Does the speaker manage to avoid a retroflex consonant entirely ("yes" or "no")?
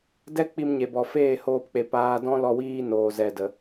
yes